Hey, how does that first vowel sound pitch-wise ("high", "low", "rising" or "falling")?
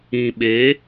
low